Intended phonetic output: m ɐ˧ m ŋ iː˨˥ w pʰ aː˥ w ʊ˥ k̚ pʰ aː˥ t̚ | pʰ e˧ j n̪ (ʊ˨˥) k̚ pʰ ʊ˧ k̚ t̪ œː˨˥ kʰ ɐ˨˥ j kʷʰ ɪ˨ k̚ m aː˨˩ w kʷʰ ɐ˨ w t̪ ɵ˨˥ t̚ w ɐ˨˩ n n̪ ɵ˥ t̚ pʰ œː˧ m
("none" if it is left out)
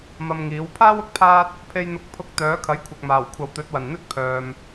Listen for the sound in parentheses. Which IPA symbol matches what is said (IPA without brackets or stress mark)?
ʊ˨˥